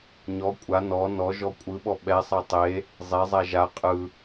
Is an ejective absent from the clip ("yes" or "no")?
no